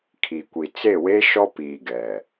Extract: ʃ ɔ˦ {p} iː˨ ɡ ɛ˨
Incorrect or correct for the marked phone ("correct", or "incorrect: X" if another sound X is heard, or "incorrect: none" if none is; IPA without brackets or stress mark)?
correct